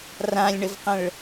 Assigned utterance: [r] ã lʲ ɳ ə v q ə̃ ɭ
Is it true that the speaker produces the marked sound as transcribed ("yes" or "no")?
yes